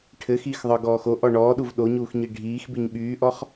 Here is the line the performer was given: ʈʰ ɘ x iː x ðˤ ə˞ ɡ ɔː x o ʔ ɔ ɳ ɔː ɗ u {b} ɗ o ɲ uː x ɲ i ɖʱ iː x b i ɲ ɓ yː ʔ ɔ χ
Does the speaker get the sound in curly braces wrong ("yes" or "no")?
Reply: yes